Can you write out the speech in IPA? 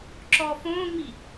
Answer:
ǁ ɔ f õː ŋ͡m i

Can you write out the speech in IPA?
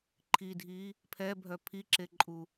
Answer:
ǃʰ i dʱ i | pʰ ɛ bʱ œ pʰ i ǁ e ǃʼ u

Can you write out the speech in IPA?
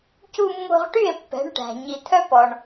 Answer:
c u˧ mː o̤˧ ʁ ʈ y˥˩ e̯ pː ɛ̤˩˥ ɳ ʈ æ̤˩ ɲ i˩ t̪ʰ œ˥ p ɔ˩ ɳ

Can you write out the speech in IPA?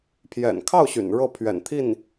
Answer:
pʰ j ɛ̰˨˩ n kʰ ɑ˥˩ ʊ̯ ɕ y̰˨˩ n ɻ ɤ˥˩ pʰ ɥ ɛ̰˨˩ n t̪ʰ i˥˩ n

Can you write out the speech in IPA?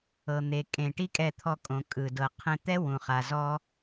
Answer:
ɤ˨ n̪ e˨ kʼ ẽ˨ ʈ i˦ kʼ ɛ˧ t̪ʰ ɔ˧ kʼ õ˨ kʼ ɯ˨ d ɤ˨ qʰ ẽ˧ t̪ ɛ˦ w ũ˨ χ a˨ z ɔ˦

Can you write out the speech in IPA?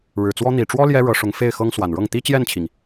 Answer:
ɻ ɻ̩˨˩ t͡s w ɔ˥ n̪ i˨˩ ʈ͡ʂ w ɔ˥ l j ɛ˥ ɻ ɤ˧˥ ʂ ʊ˧˥ ŋ f e˥˩ ɪ̯ x ɤ˥ ŋ s w a˨˩ n ɻ ɤ˥˩ ŋ t̪ i˥ t͡ɕ j ɛ˥˩ n t͡ɕʰ i˩ ŋ

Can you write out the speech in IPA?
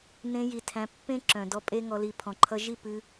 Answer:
n ẽ˧ j i˨ tʰ æ̃˧ pː ẽ˦ ǁ œ̃˨ d ɔ˧ pʼ e˧ ŋ ɔ˧ l i˧ pʰ ɔ̃˨ ǃʰ ʌ˧ ʒ i˦˨ p ɨ˧

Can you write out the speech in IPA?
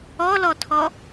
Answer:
ɔ l ɔ tʰ ɔ

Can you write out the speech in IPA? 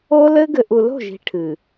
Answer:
o˦ l ɘ˦ ɡ ɘ˨ ʔ u˨ l o̤˦˨ ʒ i̤˨ ʈʰ ɨ˨

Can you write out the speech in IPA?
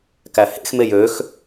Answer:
k æ h ḛ x m e j ø x

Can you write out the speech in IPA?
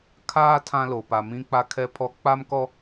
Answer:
kʰ aː˦ tʰ ã˦ l o˨ p a˨ m ĩ˦ k͡p a˦ kʰ ɛ˦ pʰ ɔ˦ k͡p a˦ m k ɔ˦

